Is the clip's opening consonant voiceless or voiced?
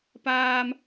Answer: voiceless